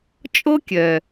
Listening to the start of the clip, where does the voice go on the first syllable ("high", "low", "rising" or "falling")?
high